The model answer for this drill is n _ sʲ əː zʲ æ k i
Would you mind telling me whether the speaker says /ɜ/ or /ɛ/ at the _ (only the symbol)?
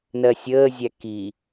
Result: ɜ